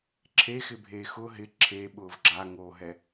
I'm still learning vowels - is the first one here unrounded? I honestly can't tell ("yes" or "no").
yes